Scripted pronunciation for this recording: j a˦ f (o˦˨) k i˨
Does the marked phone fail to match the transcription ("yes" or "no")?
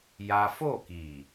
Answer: no